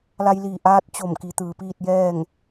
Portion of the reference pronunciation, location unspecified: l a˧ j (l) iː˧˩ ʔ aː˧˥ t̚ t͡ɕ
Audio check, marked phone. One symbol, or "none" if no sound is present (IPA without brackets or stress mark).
l